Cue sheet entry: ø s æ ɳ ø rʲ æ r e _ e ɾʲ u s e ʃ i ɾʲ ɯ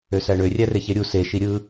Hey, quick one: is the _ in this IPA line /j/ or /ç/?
ç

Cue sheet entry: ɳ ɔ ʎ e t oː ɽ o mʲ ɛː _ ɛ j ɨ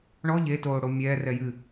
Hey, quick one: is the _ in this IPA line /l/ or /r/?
r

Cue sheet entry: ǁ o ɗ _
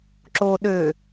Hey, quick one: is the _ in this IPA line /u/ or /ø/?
ø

